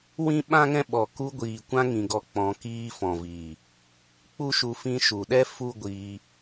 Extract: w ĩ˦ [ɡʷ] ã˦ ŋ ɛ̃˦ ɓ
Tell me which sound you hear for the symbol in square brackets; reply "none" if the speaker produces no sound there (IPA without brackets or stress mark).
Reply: ɓ